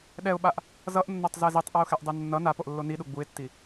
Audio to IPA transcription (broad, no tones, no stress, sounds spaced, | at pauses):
ɗ ɛ ʊ̯ ɓ a ʔ | z ʌ ʔ nː o tˤ z ɛ z i tˤ ʔ ʌ ʊ̯ x ɛ ʔ dˤ e nː ʌ n a p o ʔ lː o n i ɗ u ɡ͡b u ɪ̯ tː i